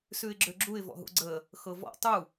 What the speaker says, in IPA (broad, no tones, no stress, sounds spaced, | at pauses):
s ʉ ɪ̯ ɡ͡ǁ ø ɡ͡ǁ u ɪ̯ v ɔ̰ ɦ ṵ ɡ͡ǀ ə | x ɤ v ɔ̰ tˤ u